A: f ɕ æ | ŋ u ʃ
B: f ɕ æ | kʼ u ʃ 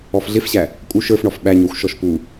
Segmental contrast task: B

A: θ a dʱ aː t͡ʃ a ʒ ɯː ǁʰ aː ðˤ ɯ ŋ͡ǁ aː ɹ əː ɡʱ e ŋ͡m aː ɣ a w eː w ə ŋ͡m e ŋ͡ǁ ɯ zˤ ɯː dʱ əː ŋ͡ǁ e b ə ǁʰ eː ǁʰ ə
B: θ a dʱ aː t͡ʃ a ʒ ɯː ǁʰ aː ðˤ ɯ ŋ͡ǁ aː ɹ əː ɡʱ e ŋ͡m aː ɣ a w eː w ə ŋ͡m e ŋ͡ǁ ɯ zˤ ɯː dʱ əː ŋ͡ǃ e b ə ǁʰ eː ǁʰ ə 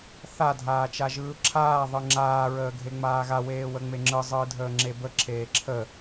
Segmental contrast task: A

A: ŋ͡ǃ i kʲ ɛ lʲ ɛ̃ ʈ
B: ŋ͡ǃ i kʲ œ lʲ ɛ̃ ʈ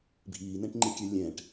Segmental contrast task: B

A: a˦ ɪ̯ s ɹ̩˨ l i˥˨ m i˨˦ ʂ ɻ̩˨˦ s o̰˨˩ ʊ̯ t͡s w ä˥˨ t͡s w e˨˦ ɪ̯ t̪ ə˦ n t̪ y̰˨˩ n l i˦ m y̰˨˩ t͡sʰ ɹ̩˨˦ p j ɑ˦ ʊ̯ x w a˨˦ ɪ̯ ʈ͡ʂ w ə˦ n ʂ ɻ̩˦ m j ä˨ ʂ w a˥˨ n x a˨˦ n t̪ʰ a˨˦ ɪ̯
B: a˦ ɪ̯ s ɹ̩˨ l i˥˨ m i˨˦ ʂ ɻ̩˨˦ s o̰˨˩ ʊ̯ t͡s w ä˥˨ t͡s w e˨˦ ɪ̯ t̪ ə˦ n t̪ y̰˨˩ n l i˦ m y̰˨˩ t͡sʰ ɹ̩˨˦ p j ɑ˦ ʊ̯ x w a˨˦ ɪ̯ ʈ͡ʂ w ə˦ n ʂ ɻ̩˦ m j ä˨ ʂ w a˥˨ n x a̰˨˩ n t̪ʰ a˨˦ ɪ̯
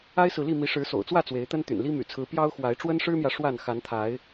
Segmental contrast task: A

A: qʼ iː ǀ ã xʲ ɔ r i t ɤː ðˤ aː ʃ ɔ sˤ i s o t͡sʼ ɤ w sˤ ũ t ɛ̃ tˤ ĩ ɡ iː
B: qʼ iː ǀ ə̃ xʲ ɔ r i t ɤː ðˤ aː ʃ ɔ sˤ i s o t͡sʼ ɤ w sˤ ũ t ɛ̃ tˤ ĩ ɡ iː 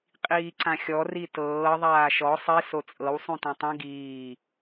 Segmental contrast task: A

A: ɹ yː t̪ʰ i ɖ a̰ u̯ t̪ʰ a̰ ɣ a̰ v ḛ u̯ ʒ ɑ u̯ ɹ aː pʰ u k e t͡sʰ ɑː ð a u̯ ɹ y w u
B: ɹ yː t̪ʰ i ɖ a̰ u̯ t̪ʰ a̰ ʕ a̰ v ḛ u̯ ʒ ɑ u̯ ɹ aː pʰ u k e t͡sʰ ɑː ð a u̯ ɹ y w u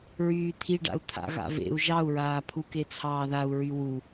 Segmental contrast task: A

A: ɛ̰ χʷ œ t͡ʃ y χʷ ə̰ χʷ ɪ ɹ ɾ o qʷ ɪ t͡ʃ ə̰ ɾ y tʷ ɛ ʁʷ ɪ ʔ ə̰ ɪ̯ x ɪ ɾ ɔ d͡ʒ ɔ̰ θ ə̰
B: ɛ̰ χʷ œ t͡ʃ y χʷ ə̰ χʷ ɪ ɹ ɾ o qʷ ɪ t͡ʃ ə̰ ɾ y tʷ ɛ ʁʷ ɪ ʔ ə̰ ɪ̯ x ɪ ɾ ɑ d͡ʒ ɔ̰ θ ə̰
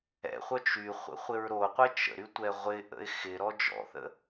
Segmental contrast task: A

